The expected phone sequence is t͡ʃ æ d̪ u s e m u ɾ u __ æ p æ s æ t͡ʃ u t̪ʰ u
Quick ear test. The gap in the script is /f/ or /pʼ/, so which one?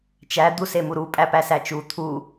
pʼ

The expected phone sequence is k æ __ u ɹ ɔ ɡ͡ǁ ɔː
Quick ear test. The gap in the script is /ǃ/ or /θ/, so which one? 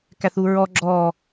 θ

